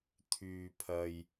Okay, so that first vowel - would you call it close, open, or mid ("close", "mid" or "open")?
close